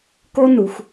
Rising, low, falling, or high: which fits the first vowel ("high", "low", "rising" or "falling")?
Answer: high